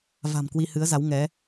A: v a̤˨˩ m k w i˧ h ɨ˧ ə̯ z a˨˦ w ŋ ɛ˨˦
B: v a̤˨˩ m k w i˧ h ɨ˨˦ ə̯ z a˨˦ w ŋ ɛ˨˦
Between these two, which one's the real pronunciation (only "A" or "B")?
B